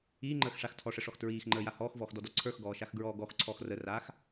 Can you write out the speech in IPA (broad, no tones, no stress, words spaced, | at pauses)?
iːŋ͡ǃəːx ʂax tʰɔʂəʂɔx tɹiːxŋ͡ǃəːja hɔːxvɔːxdɔdɔ ǀʰə˞xɡɔːʃaxɡɹɔː ɡɔxǀʰɔx rəraːx